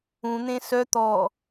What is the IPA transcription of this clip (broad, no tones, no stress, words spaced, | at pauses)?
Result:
ũn̪ẽ sœ t̪ɔ